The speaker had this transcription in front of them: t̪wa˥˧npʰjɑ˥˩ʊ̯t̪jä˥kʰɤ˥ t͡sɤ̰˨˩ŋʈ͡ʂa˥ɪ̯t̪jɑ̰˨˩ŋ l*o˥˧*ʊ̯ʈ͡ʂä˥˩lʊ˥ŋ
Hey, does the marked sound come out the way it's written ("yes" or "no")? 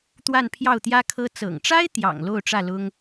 yes